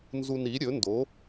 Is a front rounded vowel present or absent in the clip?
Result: absent